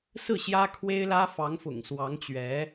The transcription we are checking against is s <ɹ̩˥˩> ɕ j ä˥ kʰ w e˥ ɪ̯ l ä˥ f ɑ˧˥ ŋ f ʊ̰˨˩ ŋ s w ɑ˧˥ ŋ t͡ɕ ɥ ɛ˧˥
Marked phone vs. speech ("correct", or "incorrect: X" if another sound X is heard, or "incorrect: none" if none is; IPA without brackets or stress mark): correct